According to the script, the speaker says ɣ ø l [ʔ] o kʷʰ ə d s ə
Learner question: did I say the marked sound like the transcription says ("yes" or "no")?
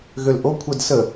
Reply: yes